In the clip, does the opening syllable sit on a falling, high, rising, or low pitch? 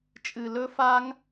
low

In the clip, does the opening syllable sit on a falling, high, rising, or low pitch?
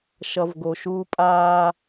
low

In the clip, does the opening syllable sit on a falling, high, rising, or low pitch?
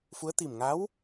rising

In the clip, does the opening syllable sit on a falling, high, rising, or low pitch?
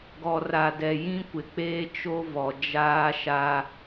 low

